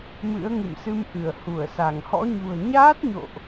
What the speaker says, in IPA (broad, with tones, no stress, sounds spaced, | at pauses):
m ɨ̰˧˥ ə̯ ŋ ɨ̰˧˨ m s ɨ˧ m ʔ ɨ˧˩ ə̯ h u˧˩ ə̯ s a˧˩ ŋ h ɔ̰˧˥ ɲ ṳ˨˩ ə̯ ɲ aː˦˥ t̚ ɲ o̰˧˨ ʔ